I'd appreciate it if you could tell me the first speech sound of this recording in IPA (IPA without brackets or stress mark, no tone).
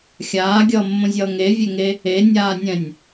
xʲ